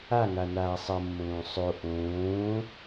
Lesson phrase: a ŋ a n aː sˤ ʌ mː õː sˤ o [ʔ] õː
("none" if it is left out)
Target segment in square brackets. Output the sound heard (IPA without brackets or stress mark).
ʔ